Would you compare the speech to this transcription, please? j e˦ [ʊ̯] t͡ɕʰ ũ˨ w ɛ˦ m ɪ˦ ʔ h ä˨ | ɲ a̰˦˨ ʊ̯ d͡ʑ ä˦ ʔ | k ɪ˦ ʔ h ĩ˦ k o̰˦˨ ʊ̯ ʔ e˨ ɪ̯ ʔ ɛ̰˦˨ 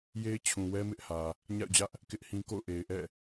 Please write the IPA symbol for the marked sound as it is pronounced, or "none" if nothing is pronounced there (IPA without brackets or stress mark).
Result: ɪ̯